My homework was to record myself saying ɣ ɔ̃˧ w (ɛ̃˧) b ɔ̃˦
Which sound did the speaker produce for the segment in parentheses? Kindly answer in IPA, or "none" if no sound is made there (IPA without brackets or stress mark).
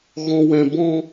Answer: ɛ̃˧